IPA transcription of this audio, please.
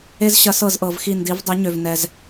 e˦zɕɐ˨˥sɤ˧˩zʔɤ˩v xi˧˩ndi˩˧v dˤɪ˩˧ ɲø˩vnɛ˩z

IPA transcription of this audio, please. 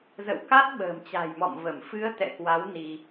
zə̰˧˨wka˦˥t̚ ɓə̤ː˨˩mt͡ɕa̤˨˩jmɔ̰˧˨m və˧˩mfɨ˨˦ə̯ t̪ɛ̰˧˨kwa˨˦w ni˧

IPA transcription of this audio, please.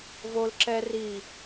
vol ǁɛ ri

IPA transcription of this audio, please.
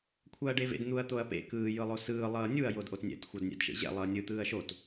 kʷʰaɐ̯ɖevḛd n̪uɐ̯t̪oɐ̯pḛ kɯː jɯlˠosɯː lˠʌːnʲuɐ̯ jodʔotnʲɛ̰t xʷʌdnʲɛ̰dʃḛʑɛ̰ lˠʌːnʲɯ t̪ɯːɐ̯ʃot

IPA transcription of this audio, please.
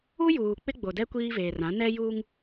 u˦juː˨ k͡pɪ˦ɡ͡bo˨dɛ˦ kʷiː˦veː˨rã˨˦ nɛ˦juː˦ŋ

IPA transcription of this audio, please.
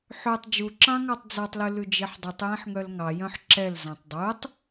ħøtˤ d͡ʒuǁɑ̃ŋɑtˤ d͡zɑtˤlʉ lʉd͡ʒeħdˤʉtˤ jẽħŋœlŋɑ jœ̃ħǁɛlzɑ̃tˤ dˤutˤ

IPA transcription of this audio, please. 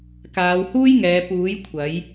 kaː˨˧w huː˥jŋɛː˨˧ puː˨˥j kʷʰɐ˨˥j

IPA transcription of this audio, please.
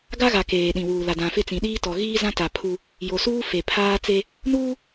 ɡa˦ɣa˨ keː˨ɗĩ˨wuː˨ la˨dã˨fɪ˦˨t͡sĩ˨ ɗiː˦tɔ˨ ɣiː˦ zã˦ta˨ pʰu˦ | jo˨suː˦ fe˨ pʰaː˦t͡se˦ | nuː˦

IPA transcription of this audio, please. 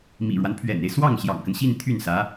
mḭ˨˩ɻwa˦npʰɥɛ̰˨˩ne˦ɪ̯ swɑ˥˩ŋ ɕjɑ̰˨˩ŋkə˦nɕi˥˧n t̪ʰy˥˩nsä˧˥

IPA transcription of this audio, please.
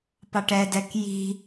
pɑʈɛdɛk ji̤

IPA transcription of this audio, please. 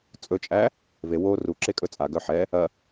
t͡sʼɵt͡ʃʼæ | ve wo ruǁekʼɵ t͡sʼaɡœ ħɛ | ɐ

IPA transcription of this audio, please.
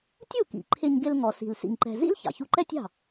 tʲu˥˩kḭ˩ ǃʰɪ˧ɲ ɡɪ˧l ŋɔ˩si̤˩l sḭ˧ŋǃɛ̤˧ zḭ˥l çɑ̰˩çu˧ǃɛ˥tʲɑ̤˥˩

